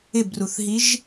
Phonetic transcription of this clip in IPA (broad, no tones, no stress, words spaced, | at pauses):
ɪbruθɦiʒ